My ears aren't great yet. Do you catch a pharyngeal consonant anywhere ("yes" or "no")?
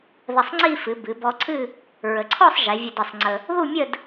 no